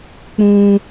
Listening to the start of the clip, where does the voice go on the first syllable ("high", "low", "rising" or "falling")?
high